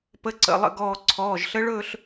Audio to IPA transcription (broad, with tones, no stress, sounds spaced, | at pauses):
p ə˧˥ ǀ ə̰˩˧˩ lˠ ə̰˥˧ ɡ ɔː˧˩ ǀʰ ɔː˩˧˩ ʒ ɬ ə˧˥ ɭ ɵː˥˧ ɬ